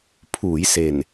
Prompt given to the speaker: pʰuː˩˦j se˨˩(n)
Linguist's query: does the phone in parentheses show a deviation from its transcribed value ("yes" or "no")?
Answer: no